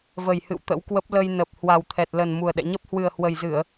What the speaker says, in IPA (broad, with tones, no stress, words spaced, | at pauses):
və˨˩jhɨ̰˧˨w t̪ə̰˧˥wkwə˦˥p̚ lə˧jnə˨˩p̚ hwa˨˩wt̪ʰɛ˨˩t̚lə˨˩n mu˨˩ə̯ ɗɛ̰˧˨ɲə˦˥p̚ hwɨ˨˩ə̯hwə˨˩jzɨ˧˩˨ə̯